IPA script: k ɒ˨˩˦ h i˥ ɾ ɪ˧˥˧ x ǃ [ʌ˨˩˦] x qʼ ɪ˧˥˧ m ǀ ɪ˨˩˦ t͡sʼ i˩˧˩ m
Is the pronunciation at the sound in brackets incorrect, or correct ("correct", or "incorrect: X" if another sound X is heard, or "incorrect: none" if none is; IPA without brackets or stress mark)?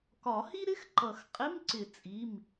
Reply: correct